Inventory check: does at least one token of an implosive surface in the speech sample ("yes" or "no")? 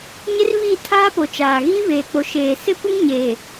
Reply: no